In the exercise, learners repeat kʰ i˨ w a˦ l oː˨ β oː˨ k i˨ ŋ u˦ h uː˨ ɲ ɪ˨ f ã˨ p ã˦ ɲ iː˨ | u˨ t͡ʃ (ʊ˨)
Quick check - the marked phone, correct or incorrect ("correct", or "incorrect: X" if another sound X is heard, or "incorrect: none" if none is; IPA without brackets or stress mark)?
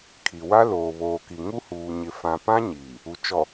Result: incorrect: ɔ˨